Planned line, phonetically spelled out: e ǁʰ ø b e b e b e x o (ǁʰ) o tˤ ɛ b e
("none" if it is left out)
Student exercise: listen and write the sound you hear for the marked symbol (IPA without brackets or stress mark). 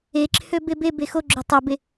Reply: ɡ͡ǁ